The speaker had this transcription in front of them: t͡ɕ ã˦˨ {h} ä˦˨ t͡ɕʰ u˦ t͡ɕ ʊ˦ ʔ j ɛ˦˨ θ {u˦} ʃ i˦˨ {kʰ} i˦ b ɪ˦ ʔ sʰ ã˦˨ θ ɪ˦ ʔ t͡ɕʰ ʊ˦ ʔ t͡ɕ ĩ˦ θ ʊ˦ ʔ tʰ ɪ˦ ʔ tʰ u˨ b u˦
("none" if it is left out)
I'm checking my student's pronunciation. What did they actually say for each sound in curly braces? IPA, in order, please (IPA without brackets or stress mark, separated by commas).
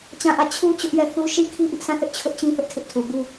ʔ, u˦, kʰ